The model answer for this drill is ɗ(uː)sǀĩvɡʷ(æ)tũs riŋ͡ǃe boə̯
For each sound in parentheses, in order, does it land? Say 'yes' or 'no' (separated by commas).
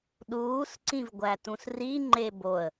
yes, yes